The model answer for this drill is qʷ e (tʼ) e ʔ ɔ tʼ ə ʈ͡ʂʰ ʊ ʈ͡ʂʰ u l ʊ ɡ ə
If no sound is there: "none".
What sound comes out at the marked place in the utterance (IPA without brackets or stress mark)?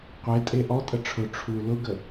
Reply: tʼ